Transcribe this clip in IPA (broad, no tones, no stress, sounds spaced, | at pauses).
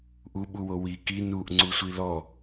ʔ u ɓ u w o w i k i n u ʔ ŋ͡ǀ u sʷ i l ɔ